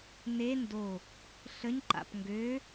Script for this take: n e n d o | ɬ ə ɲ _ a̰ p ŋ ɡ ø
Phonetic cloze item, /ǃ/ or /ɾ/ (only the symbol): ǃ